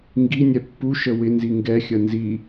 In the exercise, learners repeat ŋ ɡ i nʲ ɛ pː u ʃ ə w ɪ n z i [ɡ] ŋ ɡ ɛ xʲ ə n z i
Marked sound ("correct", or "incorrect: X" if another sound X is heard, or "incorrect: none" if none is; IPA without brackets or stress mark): incorrect: none